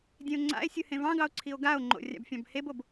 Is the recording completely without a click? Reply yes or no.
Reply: no